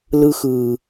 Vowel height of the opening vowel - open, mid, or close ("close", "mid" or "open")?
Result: close